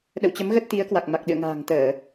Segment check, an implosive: present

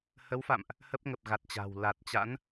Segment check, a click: absent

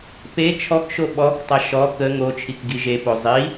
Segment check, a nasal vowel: absent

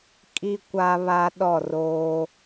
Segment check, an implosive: present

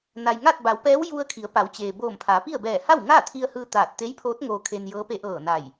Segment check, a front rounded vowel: absent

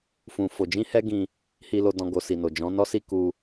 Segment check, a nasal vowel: present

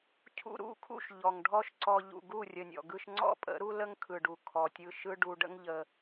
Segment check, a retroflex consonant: present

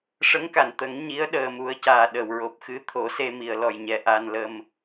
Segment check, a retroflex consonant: present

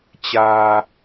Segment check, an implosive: absent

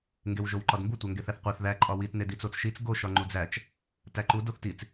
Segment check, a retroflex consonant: absent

